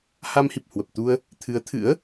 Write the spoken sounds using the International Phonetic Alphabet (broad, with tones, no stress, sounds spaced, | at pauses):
h a˧ m h i˨˩ p̚ h w ə˨˩ p̚ t̪ u˧ ə̯ | t̪ʰ ɨ˨˦ ə̯ t̪ʰ ɨ̰˧˥ ə̯